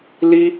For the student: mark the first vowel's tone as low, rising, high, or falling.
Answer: high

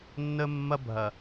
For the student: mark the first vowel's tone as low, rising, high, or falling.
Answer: high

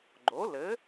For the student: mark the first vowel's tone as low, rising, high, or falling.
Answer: rising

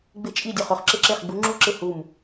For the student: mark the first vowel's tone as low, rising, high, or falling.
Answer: falling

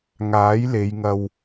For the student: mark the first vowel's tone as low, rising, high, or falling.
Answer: rising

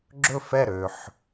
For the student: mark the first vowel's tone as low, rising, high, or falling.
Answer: falling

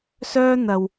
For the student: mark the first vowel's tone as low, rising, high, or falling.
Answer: high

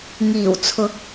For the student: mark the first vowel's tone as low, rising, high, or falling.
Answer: low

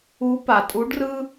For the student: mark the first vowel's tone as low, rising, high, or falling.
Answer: rising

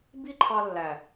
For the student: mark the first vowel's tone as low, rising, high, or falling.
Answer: high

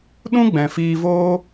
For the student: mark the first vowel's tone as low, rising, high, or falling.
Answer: high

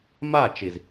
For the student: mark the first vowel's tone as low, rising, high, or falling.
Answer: falling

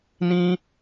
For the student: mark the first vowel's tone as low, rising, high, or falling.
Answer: high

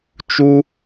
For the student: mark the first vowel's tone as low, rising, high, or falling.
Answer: high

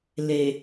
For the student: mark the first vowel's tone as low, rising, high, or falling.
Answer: low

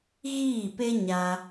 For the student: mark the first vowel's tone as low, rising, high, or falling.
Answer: falling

